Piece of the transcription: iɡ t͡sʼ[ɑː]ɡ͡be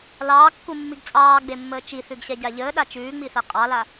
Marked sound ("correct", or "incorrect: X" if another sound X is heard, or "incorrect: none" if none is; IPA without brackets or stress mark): correct